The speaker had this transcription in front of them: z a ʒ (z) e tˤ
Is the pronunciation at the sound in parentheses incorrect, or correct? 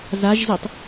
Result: correct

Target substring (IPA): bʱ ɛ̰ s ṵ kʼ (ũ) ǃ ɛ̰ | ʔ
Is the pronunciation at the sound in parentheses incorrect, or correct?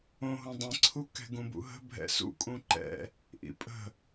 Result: correct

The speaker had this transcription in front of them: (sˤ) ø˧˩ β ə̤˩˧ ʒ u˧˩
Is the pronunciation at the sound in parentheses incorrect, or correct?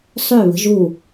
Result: correct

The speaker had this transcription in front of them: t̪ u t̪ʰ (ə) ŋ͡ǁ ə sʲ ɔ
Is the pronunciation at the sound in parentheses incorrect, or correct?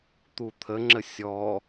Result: correct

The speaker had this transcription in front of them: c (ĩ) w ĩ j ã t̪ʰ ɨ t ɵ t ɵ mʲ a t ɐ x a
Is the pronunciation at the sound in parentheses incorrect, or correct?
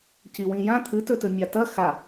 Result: incorrect: i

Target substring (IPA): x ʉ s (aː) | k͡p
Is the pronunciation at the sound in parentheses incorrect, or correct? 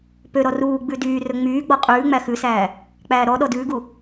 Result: incorrect: æː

